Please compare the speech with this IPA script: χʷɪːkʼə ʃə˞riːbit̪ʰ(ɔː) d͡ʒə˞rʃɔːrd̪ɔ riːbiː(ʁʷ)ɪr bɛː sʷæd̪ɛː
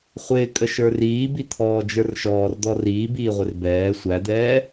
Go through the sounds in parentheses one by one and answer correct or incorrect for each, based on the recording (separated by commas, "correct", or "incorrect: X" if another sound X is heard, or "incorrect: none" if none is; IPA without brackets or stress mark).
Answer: correct, correct